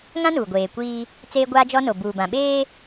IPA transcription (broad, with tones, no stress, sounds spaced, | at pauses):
ŋ ã˦ n uː˨ ɡʷ eː˨ kʷ iː˦ | t͡s eː˦ ɡʷ aː˦ d͡ʒ ɔ˦ n o˨ b uː˨ b ã˨ ɓ eː˦